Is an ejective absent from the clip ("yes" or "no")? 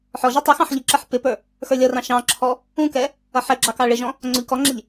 yes